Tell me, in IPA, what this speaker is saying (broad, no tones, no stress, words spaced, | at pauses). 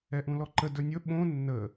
ɛʔũlɔǃə dɵnʲɵ ɓõ nːə